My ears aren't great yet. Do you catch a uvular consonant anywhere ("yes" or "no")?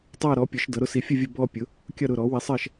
no